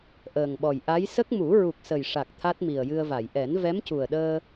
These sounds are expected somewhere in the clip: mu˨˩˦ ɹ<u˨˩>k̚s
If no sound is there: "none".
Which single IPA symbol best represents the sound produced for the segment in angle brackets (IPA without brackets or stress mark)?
u˨˩